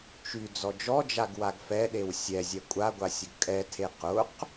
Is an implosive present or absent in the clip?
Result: present